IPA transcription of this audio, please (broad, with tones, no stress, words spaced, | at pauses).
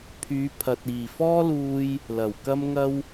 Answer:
pʰyː˨˧pʰɐ˨t̚ iː˨˩fɔː˥luː˧j | lɐ˨˩wkɐ˥m ŋɐ˥w